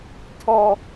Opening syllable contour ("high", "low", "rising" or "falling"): low